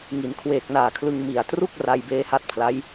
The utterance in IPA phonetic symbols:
ŋ i˩˦ n kʰ w eː˨˩ k̚ n aː˨˩ kʰ l ɯ˧ ŋ m i˨˩ a̯ t r u˥˩ k̚ r a˧ j b eː˦˥ h a˦˥ t̚ pʰ l a˦˥ j

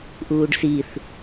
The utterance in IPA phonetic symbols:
ʔ uː ɖ s i θ

